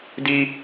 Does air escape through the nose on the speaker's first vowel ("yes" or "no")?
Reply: no